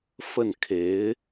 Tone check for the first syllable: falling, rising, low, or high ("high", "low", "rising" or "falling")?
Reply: falling